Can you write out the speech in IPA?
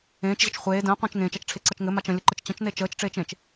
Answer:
ẽː t͡ʃ ʑ ə t͡ʃ χʷ eː d ə̃ː qʷ ə̃ː t͡ʃ ŋ ẽː t͡ʃ a t͡ʃ ʈ͡ʂʰ e ǀ ʌ t͡ʃ ŋ ɘ m a t͡ʃ ə̃ lʲ ə ǃ ɘ t͡ʃ t͡ɕ ə̃ t͡ʃ n e t͡ʃ əː t͡ʃ ʈ͡ʂ eː t͡ʃ ẽ t͡ʃ

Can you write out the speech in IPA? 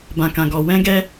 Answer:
b ã˨ k ã˨ ɡ ɔ˨ w ɛ̃˧ ɡ ɛ˧

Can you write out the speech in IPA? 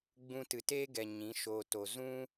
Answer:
ɡ͡b ũ˧ t ɨ˨ t eː˦ ɡ ɛ˨ ɲ ĩ˨˦ ʃ o˧ t o˨ z ũ˦

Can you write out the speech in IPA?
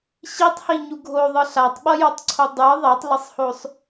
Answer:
ɕ i tˤ h i ɲ u ɡʱ o ðˤ ɯ ɬ a tˤ ɓ ʌ j o tˤ ǀʰ o dˤ ɯ ðˤ ɛ tˤ l ʌ sˤ h o sˤ

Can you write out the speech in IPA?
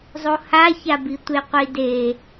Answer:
zˤ o h a ç a b i tʷ e qʷ i d e

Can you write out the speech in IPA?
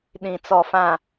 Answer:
ɗ ĩ˨ t͡s ɔ˨ f ã˨

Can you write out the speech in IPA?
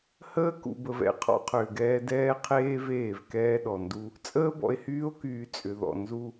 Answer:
h əː˦ k ṵ˨ b ə˨ v ɛ̰˦ qʰ ɔ̰˦ qʰ ʏː˨ ɡ ɛː˦ d ɛː˦ qʰ eː˦ v eː˦˨ v k ɛː˦ ɗ ɔ˨ n d u˦ | t͡sʼ əː˦ b ɔ̰˨ e̯ h yː˦ o̯ k yː˨ t͡sʼ ʏ˨ ð ɔ̰˨ n z u˦

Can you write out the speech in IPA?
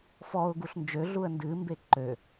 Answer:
f ɔ ʊ̯ ɡ u ɬ n d͡ʒ ø ɮ u ə̯ n d ɨ m b e ǃ ø

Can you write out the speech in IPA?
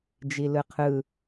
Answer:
d͡ʒ i l ɯ qʰ ɯ

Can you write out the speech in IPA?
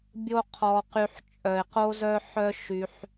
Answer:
bʲ o˦ qʰ ɔ˧ q y˧ ħ t͡ʃʼ œ˨ ɪ̯ q o˦ z œ˦ ħ œ˦ ʃ y˧ ħ

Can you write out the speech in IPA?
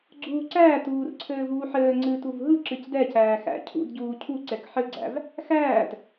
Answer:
ɡ͡ǀ uː ǀ æː t uː r ǀʰ ɘː v uː ħ ɘː ŋ͡ǀ ɨː t u v ɦ ɯ ǁ ɨ c d ɛ c æː x æ̰ cʰ ṵ d ɟ uː cʰ u ǀ ɛ k ħ ɘ ɡ͡ǀ æ̰ v | x æː t

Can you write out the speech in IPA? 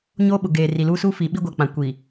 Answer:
ɲ oː˦ ɓ ʊ˨ ɡ eː˨ r i˨ l uː˦ s uː˦ f iː˨ ɓ i˦ ɡʷ a˨ k͡p ã˨ kʷ i˨

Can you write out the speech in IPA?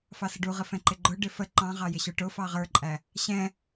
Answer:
f ɑ s ə ɖ u ʁ ə f ɛ̃ ǃ ɪ ɡ͡ǃ ʊ ɖ ɪ f ə ǃ ɑ̃ ʁ ɑ j ɪ ɕ ə˞ ʈ ʊ f ɑ ʁ ə˞ ǃʼ æ | ɕ ɛ̃

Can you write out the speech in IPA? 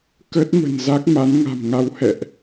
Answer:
k ə˦˥ t̚ m ə̤˨˩ n z a˦˥ k̚ m a˨˦ n ŋ a̤˨˩ m ŋ a˨˦ w h ɛ̰˧˨ ʔ

